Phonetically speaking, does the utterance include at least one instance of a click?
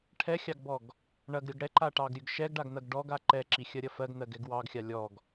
yes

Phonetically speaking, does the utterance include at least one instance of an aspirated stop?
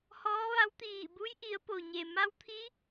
yes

